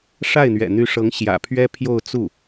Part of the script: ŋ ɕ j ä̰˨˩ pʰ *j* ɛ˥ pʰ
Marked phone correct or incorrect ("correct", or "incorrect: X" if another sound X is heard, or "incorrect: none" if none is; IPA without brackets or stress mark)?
incorrect: ɥ